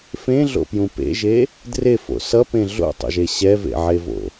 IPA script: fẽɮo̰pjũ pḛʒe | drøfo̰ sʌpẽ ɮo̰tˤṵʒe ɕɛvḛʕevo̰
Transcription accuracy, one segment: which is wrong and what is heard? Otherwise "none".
ø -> e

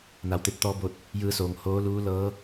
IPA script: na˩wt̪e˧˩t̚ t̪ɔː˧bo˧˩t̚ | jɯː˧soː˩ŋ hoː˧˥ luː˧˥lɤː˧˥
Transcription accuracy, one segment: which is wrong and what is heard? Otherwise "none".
none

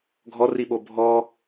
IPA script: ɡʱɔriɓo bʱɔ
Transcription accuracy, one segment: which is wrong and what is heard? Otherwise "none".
none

